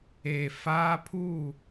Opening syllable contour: low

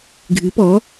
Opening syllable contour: rising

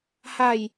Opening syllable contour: low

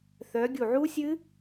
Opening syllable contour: rising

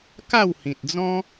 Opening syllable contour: falling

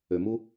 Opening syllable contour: low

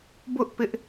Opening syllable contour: high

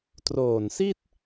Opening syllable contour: low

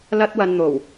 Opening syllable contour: high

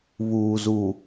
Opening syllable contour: low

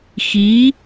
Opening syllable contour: rising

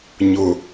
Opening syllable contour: low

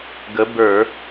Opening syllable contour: rising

